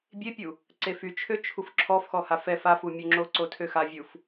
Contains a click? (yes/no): yes